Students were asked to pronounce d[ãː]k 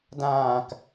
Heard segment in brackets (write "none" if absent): ãː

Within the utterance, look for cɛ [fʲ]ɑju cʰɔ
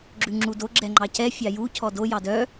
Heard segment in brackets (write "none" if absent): fʲ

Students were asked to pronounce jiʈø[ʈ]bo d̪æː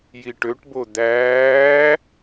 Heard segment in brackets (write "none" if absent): ʈ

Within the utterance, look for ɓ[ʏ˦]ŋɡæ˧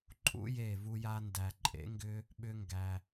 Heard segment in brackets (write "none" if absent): ʏ˦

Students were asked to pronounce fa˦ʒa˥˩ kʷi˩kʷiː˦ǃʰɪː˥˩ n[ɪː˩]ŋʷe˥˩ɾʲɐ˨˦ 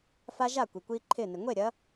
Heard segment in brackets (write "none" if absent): ɪ˩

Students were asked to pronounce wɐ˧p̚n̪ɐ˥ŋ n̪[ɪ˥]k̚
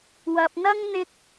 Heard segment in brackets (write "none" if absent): ɪ˥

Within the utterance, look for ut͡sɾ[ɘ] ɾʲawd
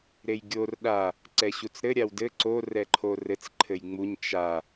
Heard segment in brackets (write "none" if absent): ɘ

